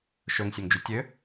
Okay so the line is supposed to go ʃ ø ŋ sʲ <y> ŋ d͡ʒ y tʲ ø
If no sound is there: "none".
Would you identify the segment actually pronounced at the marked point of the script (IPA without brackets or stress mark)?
ø